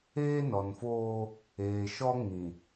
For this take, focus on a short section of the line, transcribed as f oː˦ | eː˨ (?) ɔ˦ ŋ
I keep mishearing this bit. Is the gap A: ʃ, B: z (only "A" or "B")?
A